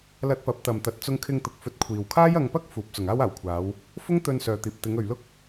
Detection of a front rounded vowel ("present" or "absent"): present